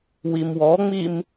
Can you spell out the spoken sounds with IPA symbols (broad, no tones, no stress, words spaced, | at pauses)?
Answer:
wimwɔŋ͡mim